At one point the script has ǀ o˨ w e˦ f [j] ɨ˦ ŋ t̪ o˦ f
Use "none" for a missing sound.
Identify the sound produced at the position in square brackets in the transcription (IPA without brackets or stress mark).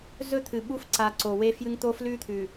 j